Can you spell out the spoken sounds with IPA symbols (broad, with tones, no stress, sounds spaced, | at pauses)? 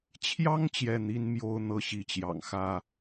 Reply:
t͡ɕʰ j ɑ˥ ŋ t͡ɕ j ɛ˥˩ n̪ i˥ n m j o˥ ʊ̯ n̪ ɤ˥ ɕ i˧˥ t͡ɕ j ɑ̰˨˩ ŋ x ä˥